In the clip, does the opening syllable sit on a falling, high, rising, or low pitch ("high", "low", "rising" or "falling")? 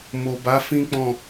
low